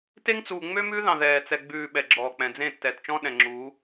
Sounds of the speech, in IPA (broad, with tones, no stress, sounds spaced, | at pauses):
t e˦ ŋ t͡s uː˨ ŋ͡m ø˦ m ʉː˦ ð ɑ̃˨ ð ɛː˨ t͡s ɛ˨ ɡ͡b ʉː˨ ɓ ɛ˨ ɡ͡ǁ ɔː˨ k͡p ɛ̃˨ d͡z ẽ˦˨ tː ɛ˨ t t͡ʃ ɔ̃˦ ɗ ɛ̃˨ ŋ͡ǁ uː˨˦